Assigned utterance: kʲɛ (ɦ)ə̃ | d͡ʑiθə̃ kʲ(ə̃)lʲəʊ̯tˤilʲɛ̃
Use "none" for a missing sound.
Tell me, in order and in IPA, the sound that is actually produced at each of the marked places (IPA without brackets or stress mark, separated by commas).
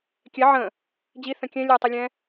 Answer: ʕ, ɛ̃